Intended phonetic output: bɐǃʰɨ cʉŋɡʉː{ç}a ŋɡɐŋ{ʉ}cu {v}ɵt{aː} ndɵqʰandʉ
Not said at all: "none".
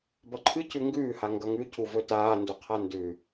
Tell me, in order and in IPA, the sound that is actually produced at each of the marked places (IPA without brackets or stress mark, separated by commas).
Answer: h, ʉ, v, aː